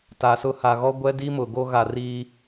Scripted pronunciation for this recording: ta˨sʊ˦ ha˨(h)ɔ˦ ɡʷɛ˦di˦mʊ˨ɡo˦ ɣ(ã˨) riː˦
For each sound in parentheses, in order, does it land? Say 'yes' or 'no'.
no, no

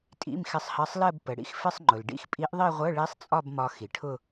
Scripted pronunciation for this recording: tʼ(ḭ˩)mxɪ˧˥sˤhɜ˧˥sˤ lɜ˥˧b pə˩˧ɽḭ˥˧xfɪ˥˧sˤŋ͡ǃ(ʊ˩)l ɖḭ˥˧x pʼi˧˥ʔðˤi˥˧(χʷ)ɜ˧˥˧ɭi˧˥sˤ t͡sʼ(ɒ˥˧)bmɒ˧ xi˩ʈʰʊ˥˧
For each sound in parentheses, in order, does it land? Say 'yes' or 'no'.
no, yes, no, yes

